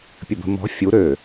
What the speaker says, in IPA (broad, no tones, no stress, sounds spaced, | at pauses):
pʲ ə b ə̤ m ɔ̤ fʲ u ɾ ø